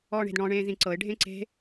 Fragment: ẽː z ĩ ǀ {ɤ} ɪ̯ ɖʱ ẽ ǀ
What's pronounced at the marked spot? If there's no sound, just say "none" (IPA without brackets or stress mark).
ɤ